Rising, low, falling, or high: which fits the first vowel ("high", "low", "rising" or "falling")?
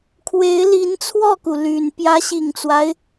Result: rising